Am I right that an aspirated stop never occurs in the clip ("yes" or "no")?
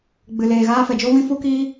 yes